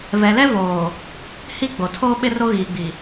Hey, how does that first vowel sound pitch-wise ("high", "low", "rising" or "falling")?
low